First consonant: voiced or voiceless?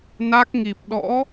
voiced